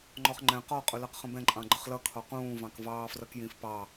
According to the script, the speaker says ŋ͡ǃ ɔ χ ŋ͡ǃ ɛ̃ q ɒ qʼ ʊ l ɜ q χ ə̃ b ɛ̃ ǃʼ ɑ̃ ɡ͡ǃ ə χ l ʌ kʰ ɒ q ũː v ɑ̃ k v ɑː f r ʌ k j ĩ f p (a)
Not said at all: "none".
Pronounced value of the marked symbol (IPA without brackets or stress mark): ɑ